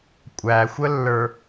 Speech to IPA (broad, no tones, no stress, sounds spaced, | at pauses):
kʷʼ æ xʷ ə lː ə˞